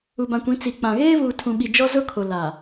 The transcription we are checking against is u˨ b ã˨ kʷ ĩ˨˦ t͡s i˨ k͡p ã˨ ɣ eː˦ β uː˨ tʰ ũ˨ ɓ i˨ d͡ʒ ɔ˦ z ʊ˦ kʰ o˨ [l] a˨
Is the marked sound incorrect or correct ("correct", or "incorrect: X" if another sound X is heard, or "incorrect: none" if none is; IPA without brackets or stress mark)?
correct